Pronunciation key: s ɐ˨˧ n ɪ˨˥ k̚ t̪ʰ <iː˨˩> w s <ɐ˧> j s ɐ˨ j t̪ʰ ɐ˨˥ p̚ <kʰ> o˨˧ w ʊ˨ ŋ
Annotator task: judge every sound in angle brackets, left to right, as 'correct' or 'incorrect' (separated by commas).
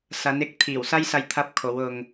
correct, correct, correct